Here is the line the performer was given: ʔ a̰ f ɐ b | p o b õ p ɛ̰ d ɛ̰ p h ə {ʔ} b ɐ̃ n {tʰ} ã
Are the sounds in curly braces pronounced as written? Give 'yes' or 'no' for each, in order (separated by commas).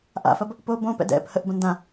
yes, no